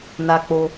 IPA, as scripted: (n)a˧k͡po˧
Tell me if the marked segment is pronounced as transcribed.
yes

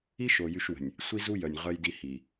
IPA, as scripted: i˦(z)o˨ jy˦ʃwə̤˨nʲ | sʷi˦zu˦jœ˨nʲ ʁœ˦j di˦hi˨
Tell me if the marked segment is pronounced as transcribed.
no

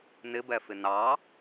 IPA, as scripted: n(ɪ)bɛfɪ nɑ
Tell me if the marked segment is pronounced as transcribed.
yes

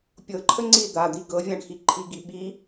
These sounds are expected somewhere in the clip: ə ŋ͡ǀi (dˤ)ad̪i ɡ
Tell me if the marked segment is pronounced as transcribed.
no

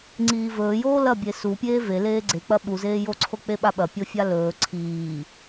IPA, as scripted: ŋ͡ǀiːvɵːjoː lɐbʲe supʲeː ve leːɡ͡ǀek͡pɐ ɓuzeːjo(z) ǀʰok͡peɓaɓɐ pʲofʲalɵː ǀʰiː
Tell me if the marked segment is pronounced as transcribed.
no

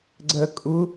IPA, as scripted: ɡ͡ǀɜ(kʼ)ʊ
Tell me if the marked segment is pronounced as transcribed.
yes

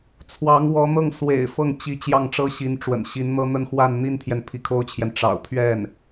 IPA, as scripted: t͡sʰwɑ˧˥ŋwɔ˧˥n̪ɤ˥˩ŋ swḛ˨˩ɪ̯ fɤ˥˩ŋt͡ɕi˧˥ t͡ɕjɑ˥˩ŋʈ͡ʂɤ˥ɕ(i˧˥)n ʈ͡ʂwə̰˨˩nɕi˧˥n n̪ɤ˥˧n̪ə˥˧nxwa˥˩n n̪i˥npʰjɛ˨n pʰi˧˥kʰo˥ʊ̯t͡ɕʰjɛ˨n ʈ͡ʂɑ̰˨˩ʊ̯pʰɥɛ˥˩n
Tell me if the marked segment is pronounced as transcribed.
yes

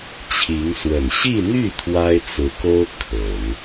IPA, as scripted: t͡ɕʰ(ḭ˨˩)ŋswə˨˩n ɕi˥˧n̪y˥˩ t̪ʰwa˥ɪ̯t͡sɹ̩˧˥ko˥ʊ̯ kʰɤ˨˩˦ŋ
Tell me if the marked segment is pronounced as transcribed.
no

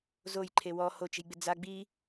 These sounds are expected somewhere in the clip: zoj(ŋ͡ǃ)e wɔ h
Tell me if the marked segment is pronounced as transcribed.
no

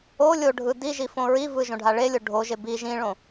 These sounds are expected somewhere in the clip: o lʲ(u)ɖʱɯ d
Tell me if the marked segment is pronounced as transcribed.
no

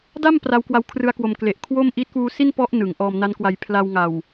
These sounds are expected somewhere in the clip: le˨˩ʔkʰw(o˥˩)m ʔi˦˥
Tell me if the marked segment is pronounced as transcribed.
yes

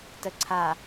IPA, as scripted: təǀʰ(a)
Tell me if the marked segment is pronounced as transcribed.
yes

